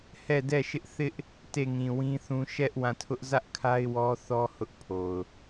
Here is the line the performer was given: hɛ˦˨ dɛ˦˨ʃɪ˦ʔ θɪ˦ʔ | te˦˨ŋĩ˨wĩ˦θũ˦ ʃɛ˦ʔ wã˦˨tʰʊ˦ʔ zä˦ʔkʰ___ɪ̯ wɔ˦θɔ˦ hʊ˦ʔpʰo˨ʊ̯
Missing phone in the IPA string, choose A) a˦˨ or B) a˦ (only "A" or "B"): B